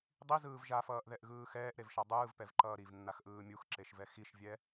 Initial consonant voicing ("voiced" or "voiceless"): voiced